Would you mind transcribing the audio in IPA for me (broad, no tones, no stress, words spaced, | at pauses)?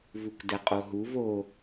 vukdɛqʼoɦuv o